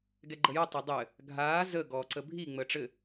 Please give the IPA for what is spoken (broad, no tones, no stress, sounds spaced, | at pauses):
ɡ ɛ ɡ͡ǃ ə j ə tˤ a dˤ ɘː | ɡʱ aː z ə ɡ ɔː ǀ ə bʱ i ŋ͡m əː ʈ͡ʂ ɘ